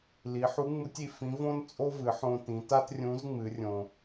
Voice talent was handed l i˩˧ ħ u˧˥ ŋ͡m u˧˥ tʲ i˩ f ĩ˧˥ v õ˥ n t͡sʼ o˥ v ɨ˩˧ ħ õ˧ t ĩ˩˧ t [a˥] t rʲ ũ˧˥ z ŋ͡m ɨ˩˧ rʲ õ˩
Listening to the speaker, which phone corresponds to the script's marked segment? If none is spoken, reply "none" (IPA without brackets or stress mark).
a˥